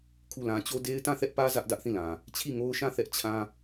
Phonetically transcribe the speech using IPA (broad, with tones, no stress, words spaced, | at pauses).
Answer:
kʰu˦˨lã˦ t͡ɕo˦de˦ɪ̯ tã˦˨θɛ˦ʔpä˦ zä˦ʔdä˦ʔθĩ˦˨lã˨ | t͡ɕʰi˦˨ŋo˦ʊ̯ʃã˦˨θɛ˦ʔ t͡ɕʰã˦